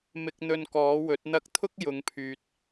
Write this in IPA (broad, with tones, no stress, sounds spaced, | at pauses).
m ɪ˧ k̚ n̪ ɵ˧ n k ɔː˨˥ w ɵ˨˥ t̚ n̪ ɐ˧ k̚ t̪ʰ ʊ˥ k̚ j ʊ˨˧ ŋ pʰ yː˨ t̚